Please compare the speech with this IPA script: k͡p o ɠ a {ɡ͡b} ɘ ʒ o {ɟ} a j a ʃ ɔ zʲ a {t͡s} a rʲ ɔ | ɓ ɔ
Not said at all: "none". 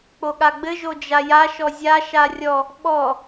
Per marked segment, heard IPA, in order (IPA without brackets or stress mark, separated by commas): ɡ͡b, d͡ʒ, ʃ